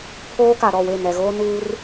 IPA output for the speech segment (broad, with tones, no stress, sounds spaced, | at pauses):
pʰ oː˦ k a˨ ɾ ɔ˦˨ w e˦˨ n ɛ˨ ɣ oː˦ n uː˦ r